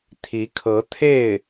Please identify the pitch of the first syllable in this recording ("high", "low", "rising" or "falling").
rising